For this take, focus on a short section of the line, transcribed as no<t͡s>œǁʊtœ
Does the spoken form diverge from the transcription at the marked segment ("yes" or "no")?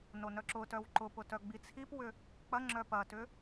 yes